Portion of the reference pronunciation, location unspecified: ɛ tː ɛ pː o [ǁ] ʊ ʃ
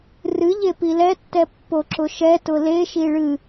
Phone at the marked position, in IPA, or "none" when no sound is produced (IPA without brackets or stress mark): ǁ